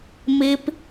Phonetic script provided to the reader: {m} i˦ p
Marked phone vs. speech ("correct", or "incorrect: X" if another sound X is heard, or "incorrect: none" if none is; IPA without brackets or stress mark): correct